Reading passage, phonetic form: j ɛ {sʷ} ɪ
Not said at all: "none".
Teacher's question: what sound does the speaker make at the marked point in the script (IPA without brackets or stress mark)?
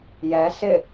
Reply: s